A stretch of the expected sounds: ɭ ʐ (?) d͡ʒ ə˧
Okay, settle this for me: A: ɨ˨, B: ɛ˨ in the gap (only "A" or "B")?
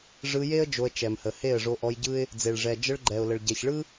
B